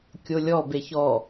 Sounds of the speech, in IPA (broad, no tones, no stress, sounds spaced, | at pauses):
kʲ o lʲ ɔ b e ç ɔ